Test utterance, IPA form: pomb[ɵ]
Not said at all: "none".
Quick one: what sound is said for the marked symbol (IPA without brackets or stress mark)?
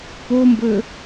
ɵ